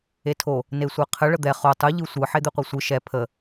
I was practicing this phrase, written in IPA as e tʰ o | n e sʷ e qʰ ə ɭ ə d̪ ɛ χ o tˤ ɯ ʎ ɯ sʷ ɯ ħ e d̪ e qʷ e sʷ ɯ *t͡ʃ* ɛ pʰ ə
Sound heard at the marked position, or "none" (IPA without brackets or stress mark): ʃ